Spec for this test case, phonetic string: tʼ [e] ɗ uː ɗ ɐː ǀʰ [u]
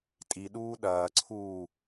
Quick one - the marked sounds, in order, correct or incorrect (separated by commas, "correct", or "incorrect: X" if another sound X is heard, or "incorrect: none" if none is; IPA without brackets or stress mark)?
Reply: incorrect: i, incorrect: uː